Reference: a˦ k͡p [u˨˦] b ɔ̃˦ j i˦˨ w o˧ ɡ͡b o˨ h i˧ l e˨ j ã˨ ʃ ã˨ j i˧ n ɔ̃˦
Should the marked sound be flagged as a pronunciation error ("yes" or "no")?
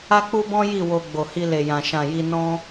yes